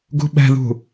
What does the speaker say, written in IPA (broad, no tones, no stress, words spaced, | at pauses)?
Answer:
ɡṳɓɛ̤ðṳ